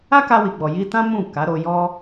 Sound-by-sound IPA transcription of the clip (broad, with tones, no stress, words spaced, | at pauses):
a˦ka˧wi˨ɡ͡bɔ˨ ji˧tã˦ mũ˦˨ ka˨˦ ɾo˧jɔ˦